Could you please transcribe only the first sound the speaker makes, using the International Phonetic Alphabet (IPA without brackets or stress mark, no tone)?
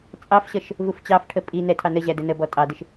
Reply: t͡sʼ